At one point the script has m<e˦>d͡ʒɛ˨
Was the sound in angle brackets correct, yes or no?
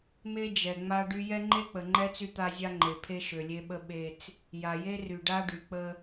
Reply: yes